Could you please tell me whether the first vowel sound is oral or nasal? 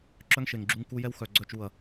oral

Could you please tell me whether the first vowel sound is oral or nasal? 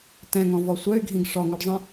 nasal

